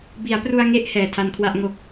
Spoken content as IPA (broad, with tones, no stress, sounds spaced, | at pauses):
b i˩˦ a̯ p r u˧ a̯ ŋ e˦˥ ʔ h ɛː˨˩ tʰ a˧ n kʰ w a˥˩ ʔ ŋ o˦˥ k̚